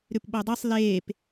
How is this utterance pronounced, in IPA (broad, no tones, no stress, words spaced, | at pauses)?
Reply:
ɾʉpɓodˤesˤ leːp